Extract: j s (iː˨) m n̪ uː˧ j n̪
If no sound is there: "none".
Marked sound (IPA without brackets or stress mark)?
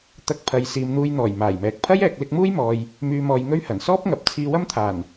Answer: iː˨